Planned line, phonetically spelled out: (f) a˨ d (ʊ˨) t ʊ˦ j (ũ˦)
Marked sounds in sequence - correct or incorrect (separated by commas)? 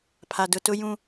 incorrect, correct, correct